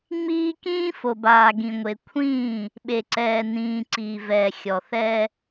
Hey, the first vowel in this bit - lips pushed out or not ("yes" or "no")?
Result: no